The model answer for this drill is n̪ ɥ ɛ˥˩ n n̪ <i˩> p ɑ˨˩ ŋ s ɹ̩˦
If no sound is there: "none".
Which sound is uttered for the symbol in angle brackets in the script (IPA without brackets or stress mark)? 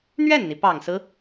i˩